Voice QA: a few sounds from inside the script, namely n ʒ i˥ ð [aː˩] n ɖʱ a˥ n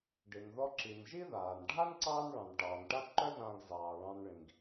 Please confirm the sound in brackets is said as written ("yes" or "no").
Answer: yes